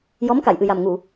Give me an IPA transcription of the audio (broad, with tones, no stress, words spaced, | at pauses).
jɔ˧˥mka˨˩˨jʔɨ˨˩ja˨˩m ŋu˨˩˨